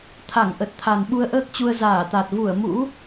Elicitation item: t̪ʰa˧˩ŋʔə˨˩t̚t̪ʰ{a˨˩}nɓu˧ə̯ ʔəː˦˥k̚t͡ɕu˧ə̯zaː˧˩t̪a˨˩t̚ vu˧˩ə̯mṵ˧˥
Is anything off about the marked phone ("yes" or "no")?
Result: no